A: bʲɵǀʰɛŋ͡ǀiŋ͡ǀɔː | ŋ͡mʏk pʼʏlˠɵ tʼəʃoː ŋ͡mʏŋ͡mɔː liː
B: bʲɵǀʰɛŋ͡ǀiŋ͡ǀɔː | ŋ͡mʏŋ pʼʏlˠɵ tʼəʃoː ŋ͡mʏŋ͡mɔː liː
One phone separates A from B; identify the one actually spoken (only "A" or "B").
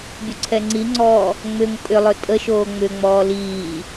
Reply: B